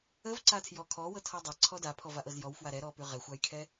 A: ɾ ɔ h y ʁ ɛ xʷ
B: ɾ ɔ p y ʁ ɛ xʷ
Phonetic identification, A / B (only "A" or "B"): B